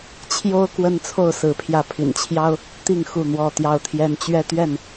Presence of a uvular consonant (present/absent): absent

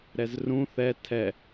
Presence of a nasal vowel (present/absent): present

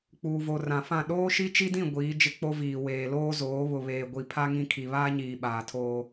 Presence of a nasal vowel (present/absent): present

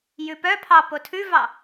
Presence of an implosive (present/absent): absent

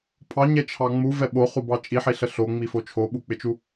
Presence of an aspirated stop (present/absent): present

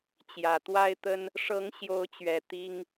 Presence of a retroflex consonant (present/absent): present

